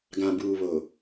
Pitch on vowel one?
low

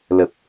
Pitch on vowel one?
low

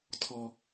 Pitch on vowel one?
high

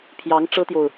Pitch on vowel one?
rising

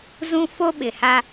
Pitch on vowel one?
high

